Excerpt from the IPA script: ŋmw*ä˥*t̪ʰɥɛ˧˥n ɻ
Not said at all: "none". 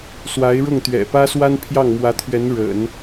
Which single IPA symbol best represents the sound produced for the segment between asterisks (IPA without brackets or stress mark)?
ä˧˥